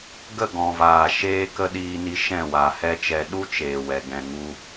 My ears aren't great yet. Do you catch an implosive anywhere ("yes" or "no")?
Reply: yes